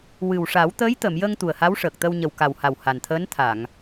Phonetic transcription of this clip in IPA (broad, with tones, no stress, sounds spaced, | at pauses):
w ɨ˨˩ w ʂ a˨˩˦ w t̪ əː˧˥ j t̪ ə˨˩˨ m j ə˧ ŋ t̪ u˨˩ ə̯ h a˧˥ w ʂ əː˨˩ k̚ t̪ ə˧ w ɲ ə˨˩ w k a˨˩ w h a˨˩ w h a˨˩ n t̪ʰ əː˧˥ n t̪ʰ a˨˩˨ ŋ